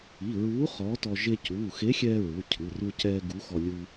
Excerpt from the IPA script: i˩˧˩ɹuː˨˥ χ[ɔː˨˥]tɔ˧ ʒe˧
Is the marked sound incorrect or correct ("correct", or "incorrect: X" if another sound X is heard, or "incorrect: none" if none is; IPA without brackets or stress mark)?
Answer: correct